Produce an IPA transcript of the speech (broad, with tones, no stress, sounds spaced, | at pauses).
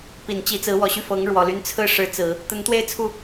p i˨˩ n t͡ɕ i˧˥ t͡s ɹ̩˧˥ w ɔ˨˩ ɕ y˥˩ f ɤ˧˥ ŋ ɻ w ɔ˨˩ l y˧˥ n t͡sʰ ɹ̩˥˩ ʂ ɻ̩˧˥ t͡s ɹ̩˨˩˦ | t̪ ə˧˥ n t̪ w e˥˧ ɪ̯ t͡sʰ u˥˩